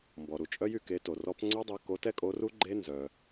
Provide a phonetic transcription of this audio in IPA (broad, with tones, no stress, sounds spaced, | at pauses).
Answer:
m b ɔ˩ ɾ u˩ t͡ʃʼ œ˦˥ j y˩ k e˨˦ t o˩ r ɔ˨˦ p ŋ͡ǀ œ˦˥ dˤ e˨˦ k o˨˦ t ɛ˦˥ kʼ o˨˦ r u˦˥ ɡ͡ǃ e˦˥ n z œ˩